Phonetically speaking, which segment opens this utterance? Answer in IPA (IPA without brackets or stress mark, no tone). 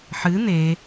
ħ